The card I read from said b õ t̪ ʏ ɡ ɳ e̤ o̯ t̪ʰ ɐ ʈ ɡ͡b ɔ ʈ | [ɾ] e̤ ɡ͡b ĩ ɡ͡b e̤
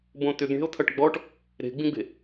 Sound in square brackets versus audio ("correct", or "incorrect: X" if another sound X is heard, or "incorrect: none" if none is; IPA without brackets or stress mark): correct